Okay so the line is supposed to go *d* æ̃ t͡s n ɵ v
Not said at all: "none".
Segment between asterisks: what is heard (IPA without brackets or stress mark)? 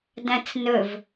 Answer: d